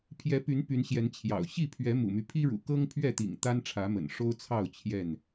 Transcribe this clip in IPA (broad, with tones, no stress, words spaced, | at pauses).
pʰjɛ˨˦py˨˦n py˨˦nɕjɛ˨˦n t͡ɕʰjɑ̰˨˩ʊ̯ ɕi˥˨pʰɥɛ˨˦ mṵ˨˩my˦pʰi˦ɻṵ˨˩ kɤ˦ŋpʰɥɛ˥˨t̪ḭ˨˩ŋ t̪a˦nʈ͡ʂʰä˨˦mə̰˨˩n ʂo˦ʊ̯t͡sʰɑ˥˨ʊ̯ t͡ɕʰjɛ˥˨n